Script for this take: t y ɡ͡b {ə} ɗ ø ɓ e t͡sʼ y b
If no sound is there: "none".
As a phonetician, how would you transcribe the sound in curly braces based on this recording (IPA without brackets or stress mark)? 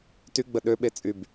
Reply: ə